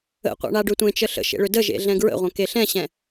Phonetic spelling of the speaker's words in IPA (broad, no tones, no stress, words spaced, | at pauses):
ə̰qʷa̰ɳa ɖøtʷẽt͡ʃə ɬə̰ʃḛ ɭʏdə ʒḛɮɛ̃ɡɹə̰ʁʷə̃ keɬɛ̃ɕɛ̃